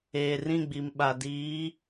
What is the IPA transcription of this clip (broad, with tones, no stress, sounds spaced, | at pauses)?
eː˨ r ĩ˦˨ ɡ͡b i˨ m ɓ a˨ d iː˨˦